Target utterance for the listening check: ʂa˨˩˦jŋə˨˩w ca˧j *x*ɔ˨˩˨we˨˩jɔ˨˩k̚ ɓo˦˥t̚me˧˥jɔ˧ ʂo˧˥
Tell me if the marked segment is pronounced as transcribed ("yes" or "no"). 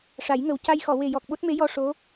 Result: yes